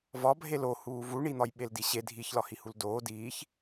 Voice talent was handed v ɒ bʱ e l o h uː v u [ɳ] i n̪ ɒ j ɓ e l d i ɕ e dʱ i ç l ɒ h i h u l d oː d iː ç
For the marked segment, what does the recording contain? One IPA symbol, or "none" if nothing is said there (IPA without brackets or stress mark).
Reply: ɳ